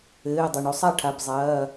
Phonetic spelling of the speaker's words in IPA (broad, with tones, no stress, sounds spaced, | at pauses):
ɘː˩˧˩ dˤ ɘ˩ ɳ o˨˦ sˤ a˥˩ ʈʰ a˩˧˩ b zˤ ɐː˩˧˩